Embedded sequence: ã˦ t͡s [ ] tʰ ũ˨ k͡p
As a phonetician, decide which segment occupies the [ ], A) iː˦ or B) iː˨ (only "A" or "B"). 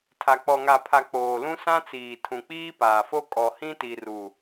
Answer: B